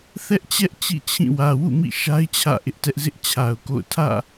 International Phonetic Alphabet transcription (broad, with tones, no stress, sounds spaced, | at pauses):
θ ɛ˦ ʔ t͡ɕ ɛ˦ ʔ t͡ɕ ḭ˦˨ t͡ɕʰ ĩ˦˨ w ä˨ w ṵ˦˨ m ḭ˦˨ ʃ a˦ ɪ̯ t͡ɕʰ ä̰˦˨ ʔ ɪ˦ ʔ t ɛ˦ ʔ z ɪ˦ ʔ t͡ɕʰ a˨ ʊ̯ k o̰˦˨ ʊ̯ tʰ ä̰˦˨